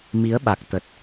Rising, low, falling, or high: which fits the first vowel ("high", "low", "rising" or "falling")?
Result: rising